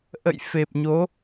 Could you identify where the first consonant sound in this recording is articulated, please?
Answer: glottal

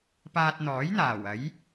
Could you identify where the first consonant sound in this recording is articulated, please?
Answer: labial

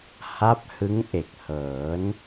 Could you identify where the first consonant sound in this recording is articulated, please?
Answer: glottal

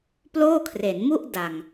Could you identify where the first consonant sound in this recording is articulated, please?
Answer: labial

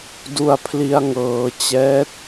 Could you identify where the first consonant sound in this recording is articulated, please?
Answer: alveolar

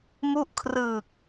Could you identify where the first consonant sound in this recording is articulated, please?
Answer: labial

